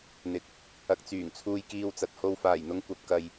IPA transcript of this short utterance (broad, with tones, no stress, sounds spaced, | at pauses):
n̪ ɪ˨ k̚ | ɐ˨ k̚ t͡s yː˨˩ ŋ t͡sʰ uː˧ j k iː˧ w t͡s ɐ˨ t̚ h o˧ w f aː˨˩ j n̪ ʊ˧ ŋ kʷ ɐ˨ p̚ k ɐ˨ j